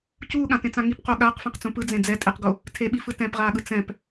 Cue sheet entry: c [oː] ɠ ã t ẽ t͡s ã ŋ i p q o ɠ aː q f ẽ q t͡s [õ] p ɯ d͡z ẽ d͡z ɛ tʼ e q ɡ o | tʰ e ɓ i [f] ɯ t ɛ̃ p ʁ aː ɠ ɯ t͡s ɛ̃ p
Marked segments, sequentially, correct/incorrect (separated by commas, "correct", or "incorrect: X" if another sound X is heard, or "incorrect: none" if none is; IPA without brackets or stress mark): incorrect: uː, incorrect: ũ, correct